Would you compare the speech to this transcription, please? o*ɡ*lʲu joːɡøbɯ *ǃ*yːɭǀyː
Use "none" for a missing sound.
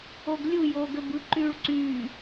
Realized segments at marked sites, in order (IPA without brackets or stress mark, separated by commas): ɡ, ǃ